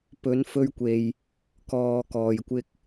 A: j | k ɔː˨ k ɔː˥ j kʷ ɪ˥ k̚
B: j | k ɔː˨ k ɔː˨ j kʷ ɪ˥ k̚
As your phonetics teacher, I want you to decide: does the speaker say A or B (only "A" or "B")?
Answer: B